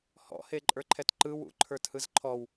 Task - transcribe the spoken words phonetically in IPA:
h ɔ̰ h e ǃʼ ə˞ ǃʰ ɛ t ǃ ɯ w ṵ ǃʰ ə˞ t h ɯ z ǃʰ ɔ w

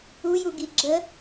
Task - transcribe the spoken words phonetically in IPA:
u j u ɡ i ɡ͡ǁ ə

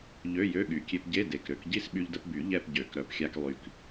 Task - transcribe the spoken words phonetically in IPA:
ʎ ø˧˥˧ j ø˧˥˧ ɠ y˨˩ kʲ e˧ p ɟ e˧˥˧ d e˨˩ k ɾ ø˧ k ɟ i˥˧ s ɓ y˧ ʎ d ə˧ p b y˨˩˦ ʎ ɛ˥˧ p ɟ ø˨˩˦ k ɾ œ˨˩ p xʲ a˧ k lˠ y˨˩ k

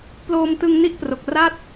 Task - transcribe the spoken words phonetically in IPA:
p l oː˧ m t ɯ˧ ŋ n i˦˥ ʔ p r o˨˩ k̚ r a˥˩ t̚

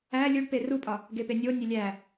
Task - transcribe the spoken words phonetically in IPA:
æ lʲ u ɖ p e r u pʼ ɒ | ɡ e p e nʲ o nʲ e lʲ æ

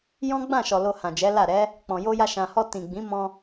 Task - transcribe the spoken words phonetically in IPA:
j ɔ̃˦ ɡ͡b ã˦˨ ʃ ɔ˨ l o˧ h ã˨ d͡ʒ ɛ˨˦ l a˦˨ ɾ ɛ˨˦ | k͡p ɔ̃˨ j o˧ j a˧ ʃ ã˨ h ɔ˧ t ĩ˨ ɡ͡b ĩ˨˦ m ɔ̃˧

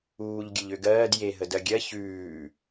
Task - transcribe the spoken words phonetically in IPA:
uː ʎ ɡʲ ə ʎ ø ɡ ɜː d j e ɦ ə d ɜ ɡʲ ɜ ç ʉː

